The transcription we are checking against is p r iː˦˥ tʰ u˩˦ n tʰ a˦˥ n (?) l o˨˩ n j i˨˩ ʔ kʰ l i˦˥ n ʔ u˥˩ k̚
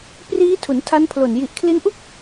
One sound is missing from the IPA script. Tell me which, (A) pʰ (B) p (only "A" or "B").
A